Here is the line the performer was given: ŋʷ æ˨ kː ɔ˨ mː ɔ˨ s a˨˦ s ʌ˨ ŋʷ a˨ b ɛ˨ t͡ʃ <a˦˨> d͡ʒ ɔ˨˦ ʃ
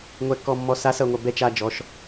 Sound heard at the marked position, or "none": a˨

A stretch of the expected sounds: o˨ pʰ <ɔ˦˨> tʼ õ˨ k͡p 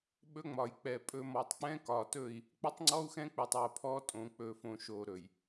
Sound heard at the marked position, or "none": ɔ˦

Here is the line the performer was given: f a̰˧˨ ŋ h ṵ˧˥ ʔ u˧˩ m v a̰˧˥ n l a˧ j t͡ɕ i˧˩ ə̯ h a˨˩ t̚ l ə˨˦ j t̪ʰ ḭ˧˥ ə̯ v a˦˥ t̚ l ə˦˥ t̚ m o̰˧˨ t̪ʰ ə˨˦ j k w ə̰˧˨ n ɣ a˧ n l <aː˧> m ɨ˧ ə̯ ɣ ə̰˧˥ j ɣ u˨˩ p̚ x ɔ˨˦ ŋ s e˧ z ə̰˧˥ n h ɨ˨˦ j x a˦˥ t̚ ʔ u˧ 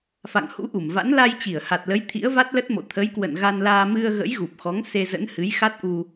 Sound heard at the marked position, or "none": aː˧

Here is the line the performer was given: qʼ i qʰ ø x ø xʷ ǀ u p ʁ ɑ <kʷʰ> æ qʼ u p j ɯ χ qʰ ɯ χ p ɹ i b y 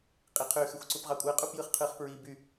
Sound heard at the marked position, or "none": kʷʼ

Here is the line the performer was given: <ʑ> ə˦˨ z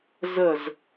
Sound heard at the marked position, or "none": z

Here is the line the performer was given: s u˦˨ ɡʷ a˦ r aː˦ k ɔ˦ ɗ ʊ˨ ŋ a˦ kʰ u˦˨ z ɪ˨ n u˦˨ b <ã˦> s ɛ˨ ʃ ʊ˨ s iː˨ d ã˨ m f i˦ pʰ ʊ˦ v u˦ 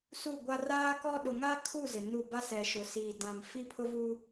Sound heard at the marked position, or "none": a˦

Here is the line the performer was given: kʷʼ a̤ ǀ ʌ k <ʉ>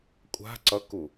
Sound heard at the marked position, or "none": u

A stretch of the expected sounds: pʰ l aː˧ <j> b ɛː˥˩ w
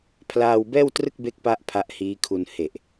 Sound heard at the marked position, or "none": w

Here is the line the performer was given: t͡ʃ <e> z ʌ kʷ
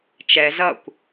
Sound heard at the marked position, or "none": ɛ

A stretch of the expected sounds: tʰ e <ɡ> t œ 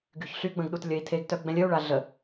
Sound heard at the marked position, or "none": ɡ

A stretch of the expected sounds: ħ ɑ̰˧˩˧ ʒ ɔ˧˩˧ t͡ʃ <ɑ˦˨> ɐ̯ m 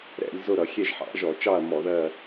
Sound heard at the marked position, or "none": ɑ˦˨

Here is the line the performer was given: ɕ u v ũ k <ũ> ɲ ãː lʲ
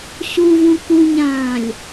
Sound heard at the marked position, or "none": u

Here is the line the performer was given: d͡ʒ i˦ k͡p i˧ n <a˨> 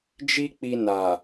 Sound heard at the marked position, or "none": a˨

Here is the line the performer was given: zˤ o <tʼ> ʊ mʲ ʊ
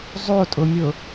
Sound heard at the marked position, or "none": tʼ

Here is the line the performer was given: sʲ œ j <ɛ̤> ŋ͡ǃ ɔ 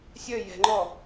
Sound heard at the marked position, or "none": ɛ̤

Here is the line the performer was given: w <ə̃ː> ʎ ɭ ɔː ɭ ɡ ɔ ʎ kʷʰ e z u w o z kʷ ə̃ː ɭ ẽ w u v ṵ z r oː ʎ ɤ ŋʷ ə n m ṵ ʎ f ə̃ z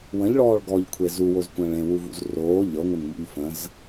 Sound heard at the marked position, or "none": ə̃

